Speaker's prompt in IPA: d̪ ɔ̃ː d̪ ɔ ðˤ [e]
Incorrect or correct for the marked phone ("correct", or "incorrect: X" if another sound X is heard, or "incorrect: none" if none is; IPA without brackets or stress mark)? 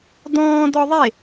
correct